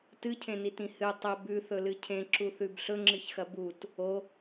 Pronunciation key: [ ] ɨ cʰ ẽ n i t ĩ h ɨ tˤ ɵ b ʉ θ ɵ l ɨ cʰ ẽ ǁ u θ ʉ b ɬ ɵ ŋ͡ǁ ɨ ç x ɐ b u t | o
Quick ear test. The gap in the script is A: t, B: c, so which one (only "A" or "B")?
A